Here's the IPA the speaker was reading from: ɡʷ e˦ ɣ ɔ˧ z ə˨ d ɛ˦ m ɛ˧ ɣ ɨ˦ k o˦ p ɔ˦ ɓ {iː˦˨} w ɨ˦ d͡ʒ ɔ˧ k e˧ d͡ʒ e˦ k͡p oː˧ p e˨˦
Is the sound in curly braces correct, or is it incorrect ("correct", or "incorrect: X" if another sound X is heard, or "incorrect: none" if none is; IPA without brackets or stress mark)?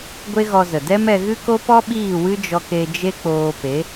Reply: correct